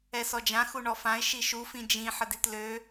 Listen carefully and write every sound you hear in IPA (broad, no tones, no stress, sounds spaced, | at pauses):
ɛ s ɔ d͡ʒ ã x u ɳ ɔ f ã ɪ̯ ʃ i ʃ u f ĩ d͡ʒ ĩ ħ ə d i t l ø